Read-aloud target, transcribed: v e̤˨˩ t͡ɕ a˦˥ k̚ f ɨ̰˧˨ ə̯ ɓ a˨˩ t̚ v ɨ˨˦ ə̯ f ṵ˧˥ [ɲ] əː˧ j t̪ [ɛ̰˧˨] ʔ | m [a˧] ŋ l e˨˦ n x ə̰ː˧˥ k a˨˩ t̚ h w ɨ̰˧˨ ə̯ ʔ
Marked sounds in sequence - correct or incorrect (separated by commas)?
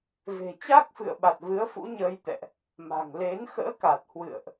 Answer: correct, correct, incorrect